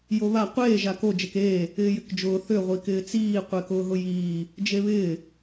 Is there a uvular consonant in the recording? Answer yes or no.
yes